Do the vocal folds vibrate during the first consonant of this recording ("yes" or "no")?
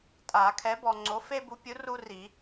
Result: no